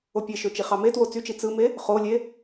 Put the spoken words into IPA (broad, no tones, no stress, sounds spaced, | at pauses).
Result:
o pʲ e ʃ ø t͡ʃ i χ ɑ m e t w o t͡s y t͡ʃ i t͡s ɯ m e | χ o lʲ e